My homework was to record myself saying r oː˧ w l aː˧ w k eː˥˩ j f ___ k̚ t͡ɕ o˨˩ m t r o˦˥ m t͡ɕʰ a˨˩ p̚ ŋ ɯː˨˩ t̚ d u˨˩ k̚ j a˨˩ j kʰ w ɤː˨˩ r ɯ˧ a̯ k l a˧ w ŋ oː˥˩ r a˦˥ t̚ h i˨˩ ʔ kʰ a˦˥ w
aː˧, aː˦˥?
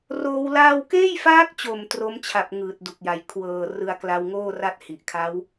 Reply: aː˦˥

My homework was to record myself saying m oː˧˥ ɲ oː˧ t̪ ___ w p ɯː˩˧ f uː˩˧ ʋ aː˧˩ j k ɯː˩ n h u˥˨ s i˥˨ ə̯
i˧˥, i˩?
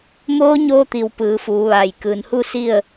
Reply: i˩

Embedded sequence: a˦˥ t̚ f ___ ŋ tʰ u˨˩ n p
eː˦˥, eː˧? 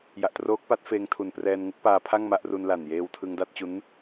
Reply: eː˧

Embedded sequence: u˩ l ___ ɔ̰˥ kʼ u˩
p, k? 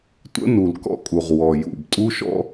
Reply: k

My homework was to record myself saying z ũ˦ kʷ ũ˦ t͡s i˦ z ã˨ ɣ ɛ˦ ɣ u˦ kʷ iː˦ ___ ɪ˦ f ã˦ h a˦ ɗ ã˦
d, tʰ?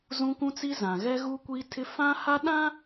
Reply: tʰ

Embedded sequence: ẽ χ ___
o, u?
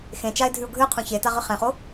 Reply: o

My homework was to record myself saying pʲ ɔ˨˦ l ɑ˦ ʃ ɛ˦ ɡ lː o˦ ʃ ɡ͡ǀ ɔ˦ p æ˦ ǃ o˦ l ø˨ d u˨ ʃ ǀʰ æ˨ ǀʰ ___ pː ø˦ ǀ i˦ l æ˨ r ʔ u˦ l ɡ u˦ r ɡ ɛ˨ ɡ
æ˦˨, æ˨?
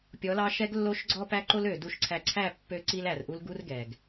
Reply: æ˦˨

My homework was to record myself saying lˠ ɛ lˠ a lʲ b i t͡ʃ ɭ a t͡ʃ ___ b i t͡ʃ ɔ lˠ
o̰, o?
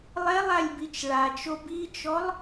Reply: o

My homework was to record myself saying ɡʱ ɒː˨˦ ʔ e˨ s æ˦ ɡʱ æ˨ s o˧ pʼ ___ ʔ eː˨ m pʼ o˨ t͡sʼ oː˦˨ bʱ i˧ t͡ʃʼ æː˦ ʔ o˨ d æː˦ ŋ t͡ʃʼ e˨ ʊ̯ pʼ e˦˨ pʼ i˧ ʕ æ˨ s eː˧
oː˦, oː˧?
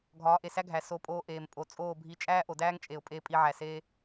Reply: oː˧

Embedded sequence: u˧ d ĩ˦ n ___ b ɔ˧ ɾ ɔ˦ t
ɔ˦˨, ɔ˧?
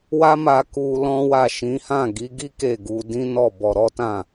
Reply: ɔ˦˨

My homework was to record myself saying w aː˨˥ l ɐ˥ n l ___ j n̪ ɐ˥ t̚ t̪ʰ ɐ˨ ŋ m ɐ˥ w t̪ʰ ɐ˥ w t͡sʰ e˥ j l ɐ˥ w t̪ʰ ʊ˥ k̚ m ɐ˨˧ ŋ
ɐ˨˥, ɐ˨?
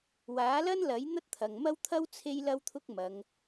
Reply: ɐ˨˥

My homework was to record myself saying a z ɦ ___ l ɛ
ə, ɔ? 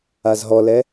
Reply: ɔ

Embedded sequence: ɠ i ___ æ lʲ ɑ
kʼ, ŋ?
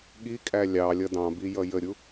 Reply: kʼ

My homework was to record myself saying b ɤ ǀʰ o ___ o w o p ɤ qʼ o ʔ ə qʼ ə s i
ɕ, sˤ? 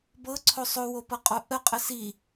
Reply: sˤ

